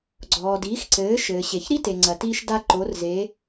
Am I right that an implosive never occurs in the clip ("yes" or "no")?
yes